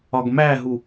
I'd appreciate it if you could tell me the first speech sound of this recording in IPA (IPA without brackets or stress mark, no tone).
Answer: ɒ